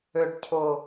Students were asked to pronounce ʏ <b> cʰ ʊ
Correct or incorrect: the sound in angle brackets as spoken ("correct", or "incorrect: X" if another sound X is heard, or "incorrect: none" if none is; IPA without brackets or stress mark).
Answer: incorrect: ɖ